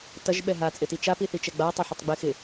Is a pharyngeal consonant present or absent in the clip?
present